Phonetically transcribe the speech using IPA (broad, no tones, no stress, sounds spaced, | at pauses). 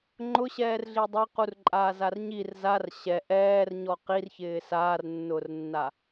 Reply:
ŋ͡ǃ ʊ ɕ ɛː r ɮ i dˤ ɛ q u r ǃʼ aː z a r ɲ i r z a r ɕ ɛ ʔ ɛː r ɲ ɔ q i r ç ɪː s aː r nː ʊː r nː a